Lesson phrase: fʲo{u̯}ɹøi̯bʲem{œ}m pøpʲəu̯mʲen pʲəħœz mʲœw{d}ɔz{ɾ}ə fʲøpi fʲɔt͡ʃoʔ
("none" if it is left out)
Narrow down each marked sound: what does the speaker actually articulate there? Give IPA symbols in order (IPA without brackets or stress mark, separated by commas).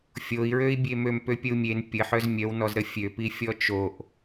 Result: i̯, ø, n, ɾ